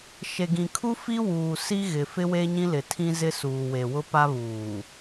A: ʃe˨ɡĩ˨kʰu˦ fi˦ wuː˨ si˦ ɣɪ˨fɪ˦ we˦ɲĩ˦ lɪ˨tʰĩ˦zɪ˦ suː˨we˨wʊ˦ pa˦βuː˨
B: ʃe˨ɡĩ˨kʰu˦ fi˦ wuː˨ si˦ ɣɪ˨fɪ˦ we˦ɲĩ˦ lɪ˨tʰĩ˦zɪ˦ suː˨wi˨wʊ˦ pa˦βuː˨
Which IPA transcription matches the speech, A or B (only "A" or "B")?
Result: A